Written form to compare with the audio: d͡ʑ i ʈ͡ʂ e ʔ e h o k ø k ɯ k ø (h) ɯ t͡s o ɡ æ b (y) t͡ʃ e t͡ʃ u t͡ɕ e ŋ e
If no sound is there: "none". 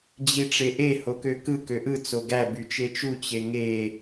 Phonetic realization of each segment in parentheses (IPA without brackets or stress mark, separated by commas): ʔ, y